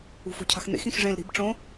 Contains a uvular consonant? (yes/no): no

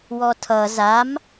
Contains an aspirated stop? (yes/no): yes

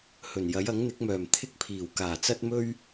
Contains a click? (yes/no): no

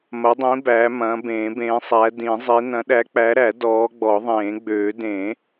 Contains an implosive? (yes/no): yes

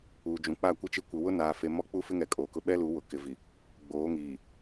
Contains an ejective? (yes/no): yes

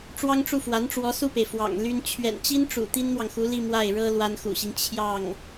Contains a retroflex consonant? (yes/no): yes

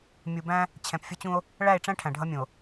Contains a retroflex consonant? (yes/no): yes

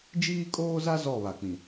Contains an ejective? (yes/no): yes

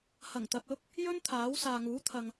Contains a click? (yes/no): no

